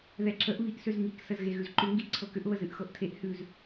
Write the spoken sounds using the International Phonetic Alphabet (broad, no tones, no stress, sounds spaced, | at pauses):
ð ɛ ǁ ə ʔ β i ʔ s ʏ z ŋ i k s ə z ɣ e ɣ ʉ z ǃ ʏ ŋ ɡ i ʔ ǀʰ ɤ k ʏ ʔ β ə z ɨ ʔ x ɤ ʔ tʰ e ʔ h ʉ z